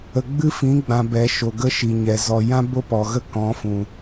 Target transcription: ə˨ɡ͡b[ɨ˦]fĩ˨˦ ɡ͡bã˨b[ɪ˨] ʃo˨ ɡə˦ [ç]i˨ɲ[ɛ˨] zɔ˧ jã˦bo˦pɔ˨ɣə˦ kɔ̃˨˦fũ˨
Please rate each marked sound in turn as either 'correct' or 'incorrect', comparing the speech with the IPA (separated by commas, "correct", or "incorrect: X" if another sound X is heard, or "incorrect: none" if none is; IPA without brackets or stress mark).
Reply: correct, incorrect: ɛ˨, incorrect: ʃ, correct